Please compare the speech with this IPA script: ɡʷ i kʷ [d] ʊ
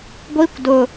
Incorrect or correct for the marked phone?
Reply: correct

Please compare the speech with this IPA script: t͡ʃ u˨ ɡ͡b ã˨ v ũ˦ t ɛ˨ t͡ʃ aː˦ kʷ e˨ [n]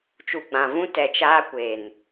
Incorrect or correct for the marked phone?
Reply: correct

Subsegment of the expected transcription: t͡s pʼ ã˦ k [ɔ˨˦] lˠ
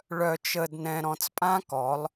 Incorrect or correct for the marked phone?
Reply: correct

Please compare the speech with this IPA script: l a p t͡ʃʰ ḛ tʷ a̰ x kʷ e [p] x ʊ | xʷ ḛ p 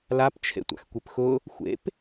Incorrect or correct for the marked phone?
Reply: correct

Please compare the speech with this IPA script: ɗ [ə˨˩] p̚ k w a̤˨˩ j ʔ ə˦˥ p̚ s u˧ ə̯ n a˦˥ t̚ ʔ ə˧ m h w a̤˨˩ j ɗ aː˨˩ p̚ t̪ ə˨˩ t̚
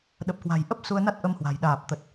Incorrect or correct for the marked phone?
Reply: correct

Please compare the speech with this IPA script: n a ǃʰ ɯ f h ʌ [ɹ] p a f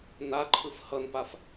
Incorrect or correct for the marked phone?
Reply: incorrect: n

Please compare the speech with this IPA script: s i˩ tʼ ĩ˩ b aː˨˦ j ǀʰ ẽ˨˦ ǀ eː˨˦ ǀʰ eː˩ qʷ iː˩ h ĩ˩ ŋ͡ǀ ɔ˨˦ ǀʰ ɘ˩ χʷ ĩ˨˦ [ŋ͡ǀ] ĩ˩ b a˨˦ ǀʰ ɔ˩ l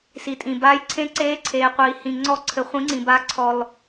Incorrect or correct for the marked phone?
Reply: correct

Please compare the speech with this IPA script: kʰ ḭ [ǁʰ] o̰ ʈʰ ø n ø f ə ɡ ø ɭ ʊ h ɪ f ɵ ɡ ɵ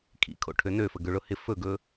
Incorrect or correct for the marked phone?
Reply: incorrect: kʰ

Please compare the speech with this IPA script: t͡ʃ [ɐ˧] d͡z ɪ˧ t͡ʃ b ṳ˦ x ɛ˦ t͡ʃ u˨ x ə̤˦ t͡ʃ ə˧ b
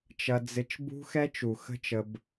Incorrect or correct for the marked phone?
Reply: correct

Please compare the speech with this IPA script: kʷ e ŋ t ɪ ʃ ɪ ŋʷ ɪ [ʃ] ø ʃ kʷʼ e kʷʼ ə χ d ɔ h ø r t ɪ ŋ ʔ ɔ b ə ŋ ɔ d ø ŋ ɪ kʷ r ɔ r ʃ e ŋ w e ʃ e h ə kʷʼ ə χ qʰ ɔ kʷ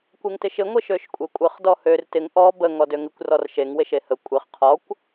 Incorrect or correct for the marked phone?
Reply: correct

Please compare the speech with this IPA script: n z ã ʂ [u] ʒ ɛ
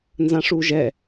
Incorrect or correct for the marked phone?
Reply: correct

